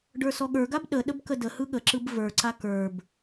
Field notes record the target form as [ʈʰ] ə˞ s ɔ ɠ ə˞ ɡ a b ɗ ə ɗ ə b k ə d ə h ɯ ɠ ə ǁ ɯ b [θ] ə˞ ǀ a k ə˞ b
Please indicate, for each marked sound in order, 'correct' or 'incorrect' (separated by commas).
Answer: incorrect, incorrect